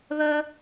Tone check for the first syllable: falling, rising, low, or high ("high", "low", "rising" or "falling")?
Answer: high